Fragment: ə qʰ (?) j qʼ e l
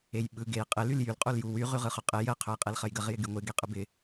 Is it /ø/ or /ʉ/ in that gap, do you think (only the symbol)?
ø